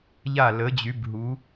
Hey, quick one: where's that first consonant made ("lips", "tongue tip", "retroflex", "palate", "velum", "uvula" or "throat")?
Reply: palate